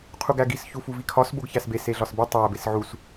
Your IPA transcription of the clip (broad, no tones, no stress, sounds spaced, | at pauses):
qʰ u ɡ æ ɡ i s ç u f u v i kʰ ɒ s b o ɡ ç æ s b e s e ɮ ɒ s b i tˤ æ b e s ʕ u s